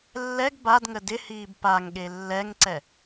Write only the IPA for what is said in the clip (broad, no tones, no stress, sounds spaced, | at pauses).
lː ɛ ɡ b a d ŋ ə d ɪ h iː b p a ŋ ɠ e lː ɛ ŋ ǀ ɛ